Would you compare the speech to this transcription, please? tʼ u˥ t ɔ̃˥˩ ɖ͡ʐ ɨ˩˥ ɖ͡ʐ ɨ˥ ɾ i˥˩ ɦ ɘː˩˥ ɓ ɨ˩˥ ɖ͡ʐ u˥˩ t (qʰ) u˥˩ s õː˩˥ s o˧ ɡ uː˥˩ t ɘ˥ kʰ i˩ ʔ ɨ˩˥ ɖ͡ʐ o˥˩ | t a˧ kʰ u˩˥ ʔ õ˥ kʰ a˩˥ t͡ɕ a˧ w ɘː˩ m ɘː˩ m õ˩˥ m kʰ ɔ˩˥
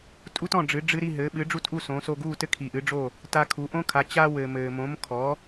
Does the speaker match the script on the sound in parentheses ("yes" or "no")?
no